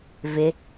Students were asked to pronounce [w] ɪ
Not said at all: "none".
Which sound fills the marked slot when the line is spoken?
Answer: v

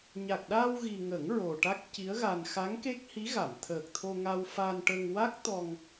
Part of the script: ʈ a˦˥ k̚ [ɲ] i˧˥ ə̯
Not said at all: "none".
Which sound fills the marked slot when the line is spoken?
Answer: c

